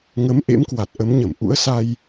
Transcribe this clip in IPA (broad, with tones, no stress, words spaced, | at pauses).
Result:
ŋə˨˦mʔḛ˧˥mkwa˨˩t̚ ʔə˨˦mɲə˧˩m ʔṵ˧˥ə̯sa˧j